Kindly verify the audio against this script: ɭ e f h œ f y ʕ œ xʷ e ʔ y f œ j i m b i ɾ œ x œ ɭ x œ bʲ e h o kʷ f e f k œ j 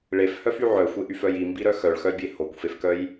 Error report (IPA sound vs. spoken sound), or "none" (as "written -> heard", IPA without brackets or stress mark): none